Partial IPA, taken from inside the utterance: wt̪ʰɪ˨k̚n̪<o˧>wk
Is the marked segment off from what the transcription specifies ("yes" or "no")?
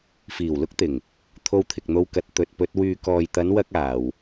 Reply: no